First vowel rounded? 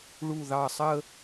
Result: yes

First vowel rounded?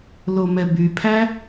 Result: yes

